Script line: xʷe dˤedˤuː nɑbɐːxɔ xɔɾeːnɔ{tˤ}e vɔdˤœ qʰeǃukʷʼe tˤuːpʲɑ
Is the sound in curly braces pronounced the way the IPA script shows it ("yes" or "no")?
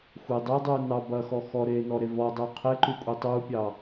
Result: no